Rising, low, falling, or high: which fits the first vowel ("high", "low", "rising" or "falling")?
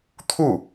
falling